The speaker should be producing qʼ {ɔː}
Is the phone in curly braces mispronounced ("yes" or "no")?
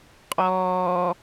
no